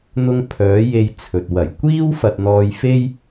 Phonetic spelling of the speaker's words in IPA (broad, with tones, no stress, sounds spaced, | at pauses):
n̪ ʊ˧ ŋ pʰ œː˨˥ j e˧ j t͡sʰ ɵ˨ t̚ w ɐ˨˩ j kʷ iː˥ w f ɐ˧ t̚ n̪ ɔː˧ j f e˥ j